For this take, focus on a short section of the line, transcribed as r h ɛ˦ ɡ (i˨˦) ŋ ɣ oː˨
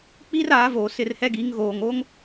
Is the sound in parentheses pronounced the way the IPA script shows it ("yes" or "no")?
yes